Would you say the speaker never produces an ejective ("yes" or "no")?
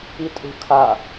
no